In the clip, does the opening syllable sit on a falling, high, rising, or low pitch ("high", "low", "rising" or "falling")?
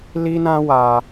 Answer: high